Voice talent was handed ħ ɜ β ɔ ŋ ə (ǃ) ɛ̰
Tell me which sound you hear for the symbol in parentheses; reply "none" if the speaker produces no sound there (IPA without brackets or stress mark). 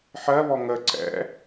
ǀ